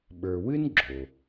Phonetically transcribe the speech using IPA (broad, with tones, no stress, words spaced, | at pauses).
ɓə˞˨wɨ˥n ɡ͡ǁo˩